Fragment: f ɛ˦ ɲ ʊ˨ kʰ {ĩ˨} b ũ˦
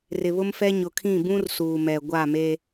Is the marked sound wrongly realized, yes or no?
yes